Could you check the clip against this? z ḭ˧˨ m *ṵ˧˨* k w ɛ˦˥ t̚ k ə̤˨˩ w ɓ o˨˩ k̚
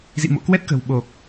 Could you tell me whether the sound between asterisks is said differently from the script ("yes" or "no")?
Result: yes